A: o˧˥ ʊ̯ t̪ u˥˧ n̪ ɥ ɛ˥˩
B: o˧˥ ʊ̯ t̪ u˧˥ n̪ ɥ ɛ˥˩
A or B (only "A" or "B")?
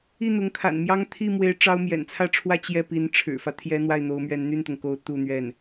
A